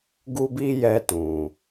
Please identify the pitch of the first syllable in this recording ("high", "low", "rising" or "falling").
high